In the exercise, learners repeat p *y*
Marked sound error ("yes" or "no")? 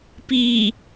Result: yes